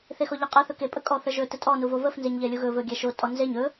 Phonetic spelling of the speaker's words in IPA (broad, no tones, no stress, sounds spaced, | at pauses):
θ e x ɔ ʎ ə qʼ ə θ ɵ k e pʼ ə kʼ ɔ θ ə ʒ ɵ t ə tʼ ɔ n u v o v ə f n z e ɲ ʎ ɛ lʲ u ɣ ɵ v ɵ ɡʲ ɛ ʃ o tʼ ɔ n z e ɲ ɵ